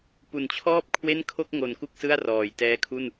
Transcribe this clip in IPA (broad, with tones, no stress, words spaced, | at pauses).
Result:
pu˨˩nt͡ɕʰɔː˥˩p̚ kʰwe˥˩n kʰo˥˩k̚ŋo˨˩n ku˥˩k̚sɯ˥˩a̯ rɔː˨˩jtɛː˦˥ kʰu˥˩n